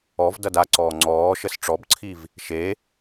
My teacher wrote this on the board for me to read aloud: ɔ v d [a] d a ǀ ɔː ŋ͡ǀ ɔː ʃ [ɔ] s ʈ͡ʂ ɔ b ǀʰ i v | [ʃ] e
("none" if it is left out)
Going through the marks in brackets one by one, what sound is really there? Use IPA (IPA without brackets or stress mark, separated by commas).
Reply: ʌ, ə, ʃ